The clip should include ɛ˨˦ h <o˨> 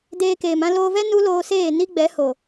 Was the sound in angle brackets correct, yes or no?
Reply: yes